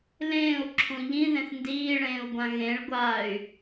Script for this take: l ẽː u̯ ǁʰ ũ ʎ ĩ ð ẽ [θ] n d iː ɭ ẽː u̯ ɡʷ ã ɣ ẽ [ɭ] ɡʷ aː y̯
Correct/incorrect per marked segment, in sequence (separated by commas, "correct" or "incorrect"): correct, correct